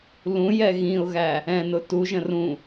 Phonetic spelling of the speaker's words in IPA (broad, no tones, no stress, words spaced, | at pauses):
lũjɛ ɣĩʊ̯ɣæ | ɛ̃nʊ tuʒə̃ rũ